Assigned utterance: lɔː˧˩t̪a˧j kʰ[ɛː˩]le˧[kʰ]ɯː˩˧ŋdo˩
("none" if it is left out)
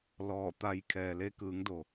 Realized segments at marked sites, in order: ɛː˩, k

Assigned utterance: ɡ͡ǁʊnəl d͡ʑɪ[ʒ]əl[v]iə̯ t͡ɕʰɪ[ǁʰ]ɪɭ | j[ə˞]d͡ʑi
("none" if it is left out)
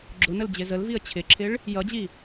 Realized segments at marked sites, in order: z, v, ǁʰ, ʌ

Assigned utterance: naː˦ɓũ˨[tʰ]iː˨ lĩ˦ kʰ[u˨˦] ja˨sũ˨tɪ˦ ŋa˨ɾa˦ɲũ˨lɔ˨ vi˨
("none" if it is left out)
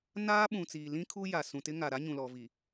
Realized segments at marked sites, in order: t͡s, u˦

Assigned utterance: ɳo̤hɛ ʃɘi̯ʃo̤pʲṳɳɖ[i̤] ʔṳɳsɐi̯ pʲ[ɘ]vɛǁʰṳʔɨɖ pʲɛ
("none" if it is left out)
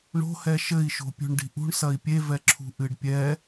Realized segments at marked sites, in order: i̤, e

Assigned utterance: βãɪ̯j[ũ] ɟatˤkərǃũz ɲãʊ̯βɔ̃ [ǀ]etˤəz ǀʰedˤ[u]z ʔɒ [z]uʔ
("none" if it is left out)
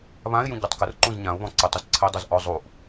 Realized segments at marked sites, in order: ũ, ǀ, u, zˤ

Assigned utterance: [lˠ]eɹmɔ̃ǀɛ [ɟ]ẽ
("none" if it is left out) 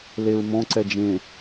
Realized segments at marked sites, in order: l, d͡ʒ

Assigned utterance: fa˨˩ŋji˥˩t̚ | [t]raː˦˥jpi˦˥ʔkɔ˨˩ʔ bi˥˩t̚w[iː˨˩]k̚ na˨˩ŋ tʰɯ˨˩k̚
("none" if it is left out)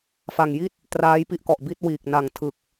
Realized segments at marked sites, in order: t, iː˨˩

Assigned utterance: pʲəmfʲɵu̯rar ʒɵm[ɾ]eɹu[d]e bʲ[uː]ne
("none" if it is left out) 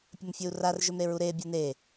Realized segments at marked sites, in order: ɾ, ɾ, u

